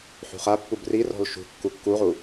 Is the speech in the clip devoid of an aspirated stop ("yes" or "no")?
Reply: yes